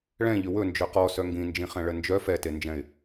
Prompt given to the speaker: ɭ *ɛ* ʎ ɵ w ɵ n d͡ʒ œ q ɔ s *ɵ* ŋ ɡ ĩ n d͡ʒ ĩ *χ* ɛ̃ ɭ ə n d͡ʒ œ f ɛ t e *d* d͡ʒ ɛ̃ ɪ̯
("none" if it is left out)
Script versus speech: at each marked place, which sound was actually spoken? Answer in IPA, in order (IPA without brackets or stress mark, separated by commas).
ɛ̃, œ, χ, n